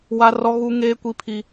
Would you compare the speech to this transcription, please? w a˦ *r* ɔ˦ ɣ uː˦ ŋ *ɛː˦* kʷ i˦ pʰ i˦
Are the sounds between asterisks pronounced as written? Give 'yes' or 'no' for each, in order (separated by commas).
yes, no